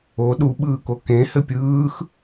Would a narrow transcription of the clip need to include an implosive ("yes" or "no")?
yes